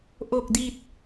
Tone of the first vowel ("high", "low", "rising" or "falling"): low